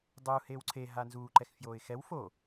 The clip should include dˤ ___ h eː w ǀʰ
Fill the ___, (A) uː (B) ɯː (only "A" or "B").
A